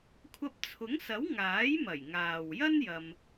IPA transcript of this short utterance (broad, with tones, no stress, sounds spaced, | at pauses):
kʷʰ ɐ˧ p̚ t͡sʰ ʊ˨˥ ŋ s ɐ˨˥ w ŋ aː˨˥ j m ɐ˨˩ j ŋ aː˨ w j ɐ˥ n j ɐ˧ m